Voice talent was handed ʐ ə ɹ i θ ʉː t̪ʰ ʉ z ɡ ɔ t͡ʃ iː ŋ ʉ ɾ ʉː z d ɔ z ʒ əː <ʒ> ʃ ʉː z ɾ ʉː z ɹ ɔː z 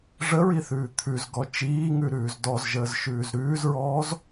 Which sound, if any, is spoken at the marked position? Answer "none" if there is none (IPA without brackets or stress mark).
z